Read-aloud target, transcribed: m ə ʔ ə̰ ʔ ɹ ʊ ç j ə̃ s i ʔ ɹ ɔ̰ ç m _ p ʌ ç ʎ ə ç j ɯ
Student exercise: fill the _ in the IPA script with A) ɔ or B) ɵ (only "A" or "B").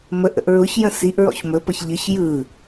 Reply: B